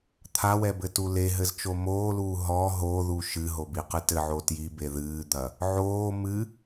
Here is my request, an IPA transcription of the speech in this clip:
t̪ʰawɛbɘtu leɦɘzt͡ʃo moːluː ɦɔ ɦoðu ʃɨɦobiqɨ tɘʕo tjibe ðɨːd̪ɐ | ʕoː mɨ

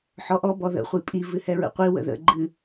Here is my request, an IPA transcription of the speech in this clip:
ħɔʔɔ bɔðə̰ χʷipʼi vɨhɛɹə̰qʷi wə̰ðə̰ ɡ͡ǃɨ

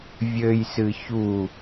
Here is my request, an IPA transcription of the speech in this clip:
vʲɘjsɨ çu

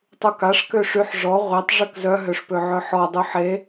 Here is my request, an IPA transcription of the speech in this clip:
tˤukaʂ køʂyħ ʐɔ ʁʷetˤ ʐøkzœ ɦøʂpøʕœħɔ dˤuħe

